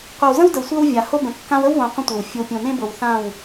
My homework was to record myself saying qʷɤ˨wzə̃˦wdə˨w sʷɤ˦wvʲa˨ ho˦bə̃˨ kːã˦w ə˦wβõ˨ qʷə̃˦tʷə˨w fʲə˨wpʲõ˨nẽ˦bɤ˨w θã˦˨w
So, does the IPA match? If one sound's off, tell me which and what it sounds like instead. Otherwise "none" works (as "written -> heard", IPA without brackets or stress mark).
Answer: none